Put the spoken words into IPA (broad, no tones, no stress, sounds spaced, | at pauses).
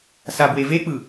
s a b w e v e k͡p ɯ